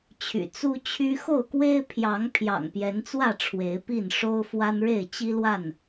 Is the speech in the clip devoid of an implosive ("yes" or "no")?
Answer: yes